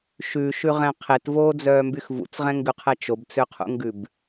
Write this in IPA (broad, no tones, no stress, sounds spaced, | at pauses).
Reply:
ʃ ʉ ʃ ʉ ʁ ɛ̃ qʰ e t v oː d͡z œː m b y x v ṵ t͡s ʁ ɛ̃ ŋ ɡ ʉ qʰ ɛ t͡ʃ o b t͡s ø qʰ ṵ ŋ ɡ ʉ b